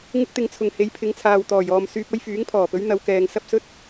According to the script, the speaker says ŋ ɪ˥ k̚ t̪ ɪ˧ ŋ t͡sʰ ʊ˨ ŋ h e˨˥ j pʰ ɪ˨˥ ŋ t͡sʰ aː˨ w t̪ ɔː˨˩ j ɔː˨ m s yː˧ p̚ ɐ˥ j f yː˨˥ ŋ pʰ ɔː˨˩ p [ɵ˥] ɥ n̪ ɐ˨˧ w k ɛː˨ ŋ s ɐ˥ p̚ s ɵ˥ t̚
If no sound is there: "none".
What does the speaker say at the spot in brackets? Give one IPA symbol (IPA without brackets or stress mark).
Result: ɵ˨˥